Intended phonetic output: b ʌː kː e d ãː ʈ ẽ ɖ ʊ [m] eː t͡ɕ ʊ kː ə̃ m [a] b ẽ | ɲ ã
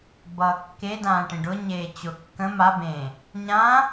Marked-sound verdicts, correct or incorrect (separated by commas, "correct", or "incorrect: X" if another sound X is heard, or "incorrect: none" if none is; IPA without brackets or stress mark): incorrect: ɲ, correct